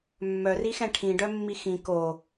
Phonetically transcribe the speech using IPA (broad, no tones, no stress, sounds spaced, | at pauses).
mː œ r i x ɛ̃ ʈʰ ĩ ɖ œ mː i x ĩ k o